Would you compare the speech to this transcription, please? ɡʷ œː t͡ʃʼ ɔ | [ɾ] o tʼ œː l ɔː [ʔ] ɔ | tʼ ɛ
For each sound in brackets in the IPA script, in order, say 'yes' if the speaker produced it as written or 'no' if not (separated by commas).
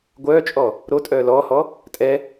yes, no